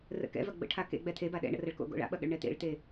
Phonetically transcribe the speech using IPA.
r ə̰ k ɛ̰ v ɐ ɡ͡b ə̰ ʈʰ a k ḛ ɡ͡b ɛ t̪ʰ e b a ɗ ɛ̰ ɳ ə̰ r ɐ ɭ k o̰ ɡ o̰ ɭ a̰ ɓ ɐ ɠ ə̰ ɭ ɳ ɛ t̪ ḛ ɭ t̪ e

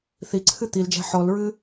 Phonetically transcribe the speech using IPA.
θ i ǀʰ ɨ t̪ i l d͡ʒ æ̤ ħ ɔ l ɹ ɨ

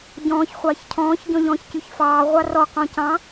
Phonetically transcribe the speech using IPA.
ɟ ɔ̃ː ç χʷ ɑː ç cʰ ɔ̃ː ç ɟ ɔ̃ ʎ ɔ̃ː ç c y ç f ɑː ʁʷ ɑ r ɔ q ɔ̃ c ɑ̃

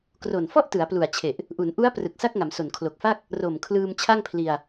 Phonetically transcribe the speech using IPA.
k r o˨˩ n f ɔ˥˩ ʔ t ɯ˩˦ a̯ p l u˨˩ a̯ t͡ɕʰ e˨˩ ʔ | ʔ u˩˦ n ʔ u˦˥ a̯ p r ɯ˨˩ k̚ s a˥˩ k̚ ŋ a˩˦ m s o˨˩ n kʰ l o˨˩ k̚ f a˥˩ k̚ | r o˨˩ m kʰ l ɯː˧ m t͡ɕʰ a˥˩ ŋ pʰ l i˧ a̯

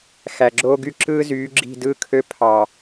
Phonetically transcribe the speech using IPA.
x æ˨ ɡ͡ǁ oː˦ ɡ y˦ ǁ ɯː˦ z yː˨˦ ɡ͡ǁ i̤˦˨ d ɯː˦ kʰ ø˦ pʰ ɑ˨

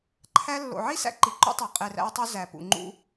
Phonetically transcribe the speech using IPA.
ǃʰ æ˧ lː o̰˨ ʕ i˦ s æ̰˧ ǃ i˨ ǃ ṵ˦ tˤ æ˨ qʼ e˨ r æ̰˧ ɪ̯ tˤ u˧ z æ˨ p ṵ˨ ŋ͡ǃ ṵ˧

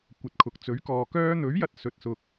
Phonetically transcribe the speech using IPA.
kʷ ɐ˨ t̚ kʰ ʊ˨ k̚ t͡s ɵ˨˥ ɥ k ɔː˨ k œː˧ n̪ ɵ˨˥ ɥ j ɐ˨ t̚ s ɵ˨ t̚ s ʊ˨ k̚

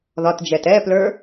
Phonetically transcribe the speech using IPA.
ð ɒ t d͡ʒ ɛ t ɛ p l ə˞

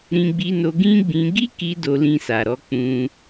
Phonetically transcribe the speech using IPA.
ɾ ĩ˧ ɡ͡b i˧ n o˧ ɡ ĩ˦ ɡ͡b ĩ˧ ɡ i˦ k i˧ d o˧ l ĩ˧ s a˨ ɾ ɔ˨˦ k͡p ũ˧

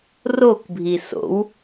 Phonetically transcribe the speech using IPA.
r o k bʱ i s o̰ w

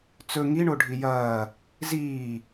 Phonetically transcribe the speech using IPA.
t͡s ɵ ŋ i ɳ o ɖʱ i j ɐː | z iː

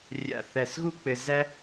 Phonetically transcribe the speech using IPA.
rʲ a̰˧˩ θ æ˧˩ s ɣ u˥ k͡p ɘ˧ z æ˥

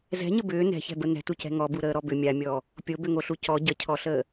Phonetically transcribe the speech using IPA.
z ɛ̤ ɲ ə b ʏː n ɛ̤ ç ɛ̤ b ə n ɛ̤ t u c ɛ̤ ŋ ɔ b u ɾ əː ɾ ɔ b ʏ mʲ a mʲ ɔː | pʲ o b ʏ ŋ o ɬ u c ɔ ɟ ə cʰ ɔ ɬ əː

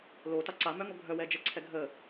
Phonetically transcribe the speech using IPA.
l o t a ǀ a m œ ŋ o ɡʱ œ w ɛ d͡ʒ ɛ ǀʰ ɛ ɡʱ ə

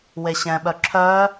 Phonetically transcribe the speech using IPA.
w e ɕ ɛ̃ ɓ œ ǁʰ œ

